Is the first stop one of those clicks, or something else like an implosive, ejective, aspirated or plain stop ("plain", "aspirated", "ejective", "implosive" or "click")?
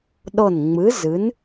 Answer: implosive